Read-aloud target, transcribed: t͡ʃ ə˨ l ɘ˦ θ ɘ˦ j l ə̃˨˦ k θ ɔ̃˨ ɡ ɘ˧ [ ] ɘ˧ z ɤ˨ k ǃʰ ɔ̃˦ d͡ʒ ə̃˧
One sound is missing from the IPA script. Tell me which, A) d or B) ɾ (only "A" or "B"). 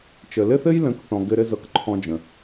B